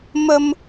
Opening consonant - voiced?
yes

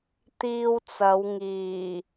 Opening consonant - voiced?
no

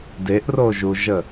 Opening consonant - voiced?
yes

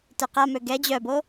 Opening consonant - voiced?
no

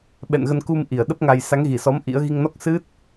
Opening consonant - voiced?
yes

